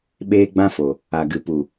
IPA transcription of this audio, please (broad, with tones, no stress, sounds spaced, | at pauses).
ɓ eː˦ ɡ͡b ã˦ f o˨ | a˨ ɡ ɨ˨ p u˨